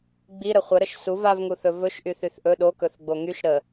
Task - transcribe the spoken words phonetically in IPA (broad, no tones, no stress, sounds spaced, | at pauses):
ɡ͡b i ɾ ə χʷ ə ɾ ə ʃ s u v a v ŋ u θ ɵ v ɵ ʃ ʔ y θ y θ ʔ ɵ ɗ o k ɵ θ ɡ͡b o ŋ y ʃ ɾ ə